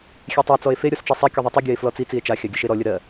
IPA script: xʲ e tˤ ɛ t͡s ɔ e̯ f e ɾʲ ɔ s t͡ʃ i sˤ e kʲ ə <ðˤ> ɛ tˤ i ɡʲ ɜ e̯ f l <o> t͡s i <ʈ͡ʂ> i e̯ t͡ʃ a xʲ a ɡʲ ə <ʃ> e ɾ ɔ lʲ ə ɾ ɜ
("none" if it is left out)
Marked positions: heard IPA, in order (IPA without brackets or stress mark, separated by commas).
ðˤ, ɔ, t͡s, ʃ